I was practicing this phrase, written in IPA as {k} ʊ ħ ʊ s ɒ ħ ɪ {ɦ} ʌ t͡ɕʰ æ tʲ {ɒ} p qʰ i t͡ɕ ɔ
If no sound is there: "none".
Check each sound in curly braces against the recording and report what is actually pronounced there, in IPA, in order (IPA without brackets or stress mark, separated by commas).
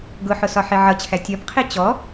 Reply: ɡ, ʕ, ɒ